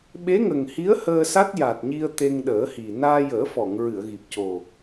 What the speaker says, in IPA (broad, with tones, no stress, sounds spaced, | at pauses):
ɓ e˧˥ ŋ ə˨˩ ŋ h i˧˥ ə̯ h əː˧ s a˦˥ t̚ j a˨˩ t̚ ɲ i˧ ə̯ t̪ e˧ ŋ ɗ əː˨˩˦ h i˨˩ n aː˧ j əː˨˩˦ f ɔ˨˩˨ ŋ ɹ ɨ˨˩˨ ə̯ ɣ i˨˩ p̚ c o˨˩